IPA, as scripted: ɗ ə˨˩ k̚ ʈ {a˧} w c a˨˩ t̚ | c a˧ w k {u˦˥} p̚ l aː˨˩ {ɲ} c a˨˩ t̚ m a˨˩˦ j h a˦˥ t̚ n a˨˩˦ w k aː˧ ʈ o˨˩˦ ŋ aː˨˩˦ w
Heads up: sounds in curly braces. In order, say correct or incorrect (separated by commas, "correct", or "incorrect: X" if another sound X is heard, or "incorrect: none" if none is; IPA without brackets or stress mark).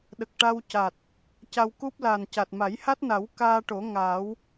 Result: correct, correct, incorrect: n